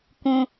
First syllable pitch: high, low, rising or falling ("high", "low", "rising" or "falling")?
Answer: high